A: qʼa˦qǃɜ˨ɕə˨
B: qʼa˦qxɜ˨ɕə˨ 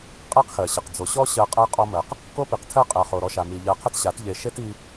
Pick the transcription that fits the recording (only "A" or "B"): B